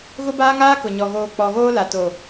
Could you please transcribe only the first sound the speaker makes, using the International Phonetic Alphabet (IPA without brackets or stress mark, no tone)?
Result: ɣ